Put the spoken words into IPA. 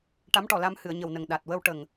ʈ a˧˥ m ʈ ɔ˨˩ l a˧ m h ɨ˨˩˨ ə̯ ɲ ə˨˩ w n ə˨˩ ŋ ɗ a˨˩ t̚ w ə˧ w ʈ ə˨˩ ŋ

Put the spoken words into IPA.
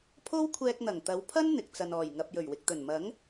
pʰ o˥ w kʷʰ ɛː˧ k̚ n̪ ɐ˨˩ ŋ t̪ ɐ˨˧ w pʰ ɐ˥ n n̪ ɪ˨ k̚ t͡s ɐ˨ n ɔː˨˩ j ŋ ɐ˨ p̚ j ɵ˨˩ ɥ w ɪ˨ k̚ t̪ ɵ˨˩ n m ɐ˨˥ ŋ

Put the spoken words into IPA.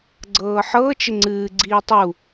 ɡ͡ǀ ɤː ħ ɤ t͡ʃ ɪ ŋ͡ǀ ɨː ɡ͡ǀ iː tˤ u

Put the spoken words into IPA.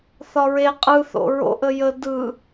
θ ɒ ɹ e qʼ ɯ θ o̰ ɹ o̰ ʔ ə j ə d ɯ

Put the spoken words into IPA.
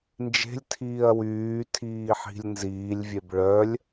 n d͡ʒ e̤ lʲ tʰ iː ɐ̯ w yː tʰ iː ħ i̤ lʲ n z iː lʲ vʲ e b ɭ œ lʲ

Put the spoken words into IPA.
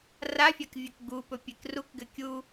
r a fʲ a k vʲ ɵ k ɡ u p ɵ pʲ e k r u k ɡ ɘ kʲ u

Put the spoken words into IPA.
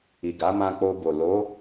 i˨ ɡ a˨˦ m ã˧ k͡p o˧ b o˨ l o˨˦

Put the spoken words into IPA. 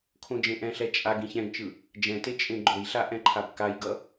kʰ õ d͡ʒ ẽ ʔ ɛ̃ ɬ ɛ t͡ʃʼ a ɡ ĩ ç ɛ̃ ɡ t͡ʃ ɯ | d͡ʒ ɛ̃ t e t͡ʃʼ ẽ ɡ͡ǃ o j ɬ a ʔ ɛ̃ ǃʰ a b k a j ɡ ʌ

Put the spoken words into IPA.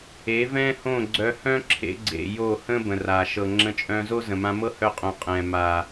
e˨˦ v ɛ̃˦ h õ˦˨ ɡ͡ǀ œ˧ h œ̃˦ ǁʰ ḛ˧ ɡ͡ǀ ḛ˨ j o˦˨ h ə̃˦ b ə̃˨ r a˨ ʃ ɤ˨ ŋ͡ǁ ə̃˧ t͡ʃʼ œ̃˧ z o˦ z ə̃˨ m ã˧ m ɤ˦ h œ˦ qʼ õ˧ qʼ ɛ̃˨ m a˨

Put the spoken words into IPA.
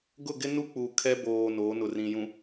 ɡ ʊ˦˨ ɡ ɪ˦ n u˦ k͡p u˨ kʰ ɛ˦ b oː˨ n o˨˦ n ʊ˨ r ĩ˨ j ũ˨

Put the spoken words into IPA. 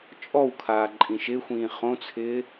t͡ʃʼ ɔ w kʰ aː ǃʼ ĩ ʃ ɪ xʷ ĩː χ õ t͡sʰ ɪː

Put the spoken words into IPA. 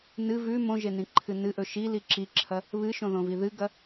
n ɨ v ʉ m õ ʒ e n ĩ ǃʰ ɨ n ɨ ʔ ɵ ʃ i l i ǁ i ǁʰ ɐ | β ɨ ʃ õ ð õ v i ð ɨ ɡ ɐ

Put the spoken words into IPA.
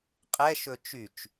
qʼ ɛ ʃ ɵ t͡ʃ y t͡ʃ

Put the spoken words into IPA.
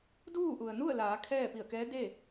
d uː˥˨ ʔ u˩ ə̯ n u˥˨ ə̯ l aː˩˧ kʰ ɛː˥˨ p i˧˩ ə̯ k ɛː˧˥ d e˥˨

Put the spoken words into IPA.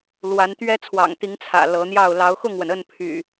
l w a˨˦ n t̪ ɥ ɛ˦ t͡sʰ w ɑ̰˨˩ ŋ t̪ i˨˦ ŋ t͡sʰ ä̰˨˩ l ɤ˨˦ n̪ j ɑ˥˨ ʊ̯ l ɑ˨˦ ʊ̯ x ʊ˥˨ ŋ w ə˩ n ə˥˨ n pʰ y̰˨˩

